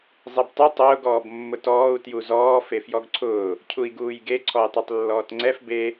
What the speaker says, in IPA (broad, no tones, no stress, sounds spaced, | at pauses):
zˤ e b tˤ e tˤ ʊː ɡ ɔː b mː ʊ t ɔː u̯ t j u z ɔː f e f j ɔ ɡ ǀʰ ʊː | cʰ u i̯ ɡ uː j ɡ e ǀʰ ɔ j tˤ e tˤ lː ɔː t ŋ͡ǀ ɛ f b e